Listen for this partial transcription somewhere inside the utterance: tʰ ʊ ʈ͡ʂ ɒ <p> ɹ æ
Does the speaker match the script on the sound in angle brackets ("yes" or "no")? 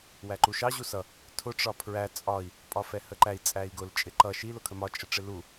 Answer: no